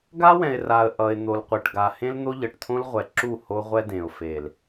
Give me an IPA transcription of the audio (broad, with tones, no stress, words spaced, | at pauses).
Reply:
ɡa˦wɛ̃˨ɪ̯ra˨ə̯ ʔʌ˨ɪ̯ n̪o˨lqʷɛ˨ʈɡa˨ hẽ˦ln̪o˦ʎʌ˨ʈ t̪ʰõ˦lʁʷɛ˨ǁu˦˨ ho˦ʁʷɛ˦dẽ˨ʊ̯fe˨l